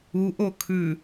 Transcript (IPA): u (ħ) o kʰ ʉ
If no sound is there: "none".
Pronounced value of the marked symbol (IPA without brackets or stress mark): ʔ